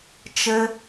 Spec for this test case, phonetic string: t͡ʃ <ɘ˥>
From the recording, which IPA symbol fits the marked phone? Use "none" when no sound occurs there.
ɘ˥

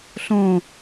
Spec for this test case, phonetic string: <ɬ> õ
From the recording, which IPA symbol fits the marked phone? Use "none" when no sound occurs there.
ɬ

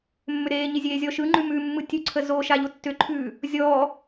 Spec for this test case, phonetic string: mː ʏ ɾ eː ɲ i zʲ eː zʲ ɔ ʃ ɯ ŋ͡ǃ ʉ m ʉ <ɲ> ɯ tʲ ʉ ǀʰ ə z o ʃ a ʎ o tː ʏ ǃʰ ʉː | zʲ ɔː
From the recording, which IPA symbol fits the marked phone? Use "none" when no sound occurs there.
mː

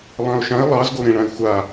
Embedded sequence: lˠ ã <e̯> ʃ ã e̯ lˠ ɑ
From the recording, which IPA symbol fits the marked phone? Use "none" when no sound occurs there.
o̯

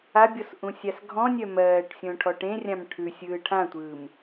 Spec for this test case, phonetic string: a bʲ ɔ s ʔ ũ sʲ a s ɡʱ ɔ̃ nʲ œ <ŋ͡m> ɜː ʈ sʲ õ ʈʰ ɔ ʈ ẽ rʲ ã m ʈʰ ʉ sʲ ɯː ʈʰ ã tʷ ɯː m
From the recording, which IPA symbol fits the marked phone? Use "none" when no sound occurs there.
m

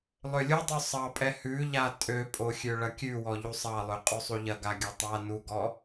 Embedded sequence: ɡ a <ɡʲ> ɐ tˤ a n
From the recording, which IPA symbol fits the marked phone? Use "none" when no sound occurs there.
ɡʲ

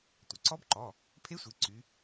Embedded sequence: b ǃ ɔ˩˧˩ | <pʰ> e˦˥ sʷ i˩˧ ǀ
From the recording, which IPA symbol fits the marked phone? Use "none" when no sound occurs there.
pʰ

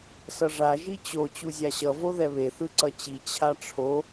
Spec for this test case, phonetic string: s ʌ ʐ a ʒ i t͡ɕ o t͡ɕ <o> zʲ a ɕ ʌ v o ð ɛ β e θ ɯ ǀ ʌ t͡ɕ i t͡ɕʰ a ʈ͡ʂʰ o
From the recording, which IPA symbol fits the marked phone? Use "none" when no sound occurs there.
u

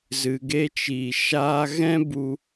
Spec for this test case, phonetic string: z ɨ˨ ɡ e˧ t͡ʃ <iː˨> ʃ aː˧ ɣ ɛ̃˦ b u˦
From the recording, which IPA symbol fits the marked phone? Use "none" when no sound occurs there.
iː˨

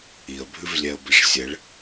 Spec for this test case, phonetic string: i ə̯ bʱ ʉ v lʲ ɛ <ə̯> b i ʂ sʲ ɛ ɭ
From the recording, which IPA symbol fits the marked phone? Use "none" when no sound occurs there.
ə̯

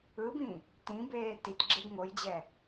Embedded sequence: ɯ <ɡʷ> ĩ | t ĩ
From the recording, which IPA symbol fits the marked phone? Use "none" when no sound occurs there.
b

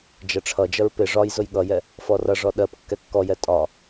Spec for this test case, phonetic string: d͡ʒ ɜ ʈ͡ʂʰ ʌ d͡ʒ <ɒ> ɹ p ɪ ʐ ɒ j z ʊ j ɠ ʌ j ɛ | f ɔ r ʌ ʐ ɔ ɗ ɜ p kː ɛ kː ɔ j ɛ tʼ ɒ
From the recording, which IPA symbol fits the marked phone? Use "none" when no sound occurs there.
ʌ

